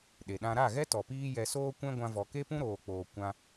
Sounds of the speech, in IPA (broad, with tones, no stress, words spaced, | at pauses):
ɗe˨ɗã˧ ɾa˦˨ɣɛ˦ tɔ˨piː˦jɛ˧ soː˦kʷɛ̃˦ɡʷã˧vɔ˨ ke˦pũ˦ɾoː˨k͡poː˨ kʷã˧